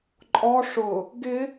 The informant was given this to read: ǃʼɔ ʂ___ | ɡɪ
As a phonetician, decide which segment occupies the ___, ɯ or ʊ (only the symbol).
ʊ